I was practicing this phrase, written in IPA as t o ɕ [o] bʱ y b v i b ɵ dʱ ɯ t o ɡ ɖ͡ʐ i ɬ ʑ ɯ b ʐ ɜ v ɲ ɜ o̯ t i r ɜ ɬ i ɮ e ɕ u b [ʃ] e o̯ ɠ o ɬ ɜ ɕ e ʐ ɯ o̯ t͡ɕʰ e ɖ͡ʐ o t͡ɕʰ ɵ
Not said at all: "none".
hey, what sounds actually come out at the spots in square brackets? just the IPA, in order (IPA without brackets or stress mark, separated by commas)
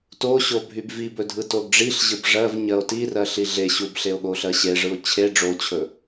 o, ɬ